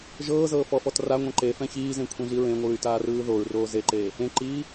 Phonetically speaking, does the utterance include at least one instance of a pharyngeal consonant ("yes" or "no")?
no